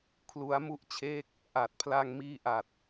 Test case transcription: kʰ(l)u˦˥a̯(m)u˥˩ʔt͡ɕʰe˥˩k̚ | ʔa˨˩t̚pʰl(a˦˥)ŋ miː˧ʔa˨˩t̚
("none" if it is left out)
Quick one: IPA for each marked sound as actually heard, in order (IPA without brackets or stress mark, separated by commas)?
l, m, a˧